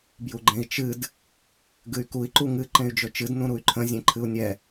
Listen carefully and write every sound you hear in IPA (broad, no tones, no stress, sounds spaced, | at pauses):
b j u ɡ͡ǃ ẽ i̯ t͡ʃ ɨ d | ɡ ɨ y̯ k u i̯ ǃ u ŋ ɨ ǃ ẽ y̯ d͡ʒ ɵ t͡ʃ ɨ d n ũ ɾ u y̯ ǃʰ ə̃ zʲ ẽ ǃʰ ɨ u̯ nʲ ɛ